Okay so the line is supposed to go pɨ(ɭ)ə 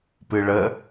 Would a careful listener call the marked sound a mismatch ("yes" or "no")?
no